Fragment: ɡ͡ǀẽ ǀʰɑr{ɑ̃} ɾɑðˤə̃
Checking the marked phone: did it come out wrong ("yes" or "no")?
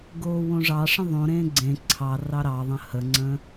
yes